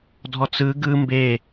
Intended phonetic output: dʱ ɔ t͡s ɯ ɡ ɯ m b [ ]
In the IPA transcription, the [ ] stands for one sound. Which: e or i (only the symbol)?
e